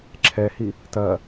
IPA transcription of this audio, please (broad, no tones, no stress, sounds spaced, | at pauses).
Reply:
ǁʰ ɛ h i | t ɐː